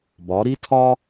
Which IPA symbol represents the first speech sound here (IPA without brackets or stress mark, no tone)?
b